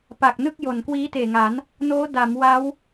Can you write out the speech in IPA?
p a˨˩ k̚ n ɯ˥˩ k̚ j o˨˩ n k w iː˦˥ t eː˨˩ ŋ a˩˦ n | n oː˦˥ d a˩˦ m w a˦˥ w

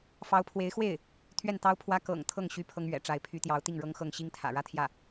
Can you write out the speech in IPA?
f ɑ˧˥ ʊ̯ pʰ w e˧˥ ɪ̯ x w e˥˩ ɪ̯ | t̪ʰ ɥ ɛ˥˩ n t̪ ɑ˥ ʊ̯ pʰ w ä˥ k ɤ̰˨˩ ŋ t̪ʰ ɤ˥˩ ŋ ɕ y˥ pʰ ɤ˥ ŋ ɥ ɛ̰˨˩ ʈ͡ʂ a˧˥ ɪ̯ pʰ y˧˥ t̪ j ɑ˧˥ ʊ̯ t̪ i˥˩ ŋ ɻ ɤ˥ ŋ x ɤ˥˩ ŋ ɕ i˥ ŋ t̪ʰ ä̰˨˩ ɻ ä˥ t̪ʰ j ä˥˩

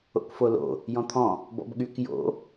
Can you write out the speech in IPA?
o̰ k f o l o̰ | j ɔ̃ t̪ʰ ɔ̃ | b ɔ̰ b ɠ y k j o̰

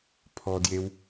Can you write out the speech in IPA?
pʰ ɔ d j e w

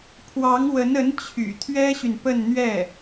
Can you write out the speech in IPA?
pʰ w ɑ˧˥ ŋ w ə˧˥ n ə˧˥ n t͡ɕʰ y̰˨˩ t̪ʰ ɥ ɛ˥ ɕ y˨ n p ə˥˧ n n̪ ɥ ɛ˥˩

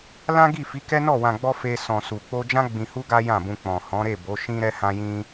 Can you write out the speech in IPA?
l ã˦ ɡ i˦˨ f i˨˦ k ɛ˦ n ɔ˦˨ w ã˨ ɡ͡b ɔ˧ f e˧ s ɔ̃˨ s u˨ k͡p o˧ d͡ʒ ã˦ ɡ͡b ĩ˧ h u˦ ɡ a˦ j ã˦˨ b ũ˧ k͡p ɔ̃˨ h ɔ̃˨˦ ɾ e˦˨ b o˨˦ ʃ ĩ˦ ɾ ɛ˦ h ã˦ j ĩ˦

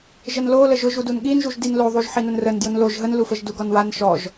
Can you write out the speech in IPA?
ʒ ə n l o l ə ʒ ʊ ʒ u d u n ɠ i n ʒ u ʒ d i n l o ðˤ u ʒ ħ i n ʊ n r ə n d j ʊ n l o ʒ ɦ ə n l u f ə ʒ d u ɡ ɔ n w a n ʃ ɔ ʒ

